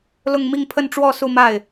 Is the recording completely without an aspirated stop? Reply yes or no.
no